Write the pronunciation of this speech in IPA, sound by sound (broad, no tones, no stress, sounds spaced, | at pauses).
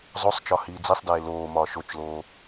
zˤ o sˤ t͡ʃ ɒ h iː d͡z i sˤ d eː l oː m ɒː ʃ o t͡ʃ l oː